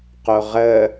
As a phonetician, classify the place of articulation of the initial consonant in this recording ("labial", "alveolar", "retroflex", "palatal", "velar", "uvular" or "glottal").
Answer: uvular